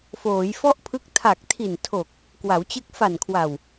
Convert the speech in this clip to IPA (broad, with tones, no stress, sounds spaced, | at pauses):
f oː˩˦ j f ɔ˥˩ ʔ pʰ ɯ˦˥ k̚ tʰ a˨˩ k̚ tʰ i˨˩ n tʰ o˨˩ k̚ | k w a˩˦ w t͡ɕ ɯ˦˥ k̚ f a˨˩ n kʰ w a˨˩ w